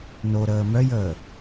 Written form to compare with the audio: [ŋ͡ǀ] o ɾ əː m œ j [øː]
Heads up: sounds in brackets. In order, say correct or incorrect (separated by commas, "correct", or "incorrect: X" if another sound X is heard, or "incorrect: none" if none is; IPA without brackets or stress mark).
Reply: incorrect: n, incorrect: əː